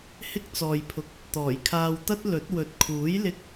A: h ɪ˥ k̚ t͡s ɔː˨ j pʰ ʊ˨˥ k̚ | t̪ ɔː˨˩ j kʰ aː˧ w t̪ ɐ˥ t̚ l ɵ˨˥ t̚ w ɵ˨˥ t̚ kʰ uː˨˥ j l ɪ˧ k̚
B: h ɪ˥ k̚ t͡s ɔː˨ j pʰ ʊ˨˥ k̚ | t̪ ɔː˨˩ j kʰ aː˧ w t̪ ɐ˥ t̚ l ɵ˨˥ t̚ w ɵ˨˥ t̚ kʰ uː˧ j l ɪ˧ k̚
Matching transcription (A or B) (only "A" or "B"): A